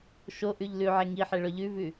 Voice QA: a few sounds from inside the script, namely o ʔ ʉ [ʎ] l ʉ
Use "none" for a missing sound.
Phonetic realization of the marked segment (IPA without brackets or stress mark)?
ʎ